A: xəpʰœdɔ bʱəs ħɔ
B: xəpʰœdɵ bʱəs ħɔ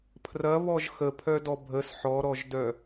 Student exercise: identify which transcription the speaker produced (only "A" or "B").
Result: A